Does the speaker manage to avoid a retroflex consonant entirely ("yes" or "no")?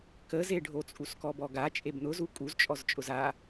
no